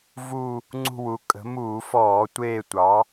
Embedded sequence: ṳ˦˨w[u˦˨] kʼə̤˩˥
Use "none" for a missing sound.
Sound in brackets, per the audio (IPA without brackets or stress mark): u˩˥